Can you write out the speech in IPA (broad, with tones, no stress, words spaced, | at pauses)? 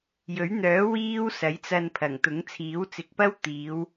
jɵ˨˥ɥn̪œː˨˥ wiː˥wsɐ˨˥jt͡sɐ˧n pʰɐ˨˩ŋt̪ʊ˨˥ŋ t͡sʰiː˨˥wt͡sɪ˨˥k̚pɐ˥w t̪iː˨˧w